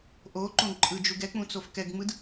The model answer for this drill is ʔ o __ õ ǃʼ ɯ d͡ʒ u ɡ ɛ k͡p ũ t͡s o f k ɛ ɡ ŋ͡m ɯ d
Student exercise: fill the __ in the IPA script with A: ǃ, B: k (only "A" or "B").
A